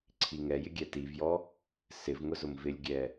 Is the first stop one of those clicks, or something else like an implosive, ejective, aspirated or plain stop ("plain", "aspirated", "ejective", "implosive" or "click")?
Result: click